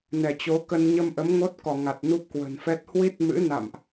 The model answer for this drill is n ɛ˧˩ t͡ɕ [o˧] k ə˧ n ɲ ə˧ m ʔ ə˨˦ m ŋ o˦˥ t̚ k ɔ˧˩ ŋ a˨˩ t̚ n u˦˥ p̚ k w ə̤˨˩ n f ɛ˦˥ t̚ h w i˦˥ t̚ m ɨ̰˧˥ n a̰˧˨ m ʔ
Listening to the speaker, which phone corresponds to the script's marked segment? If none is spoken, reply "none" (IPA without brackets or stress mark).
o˨˦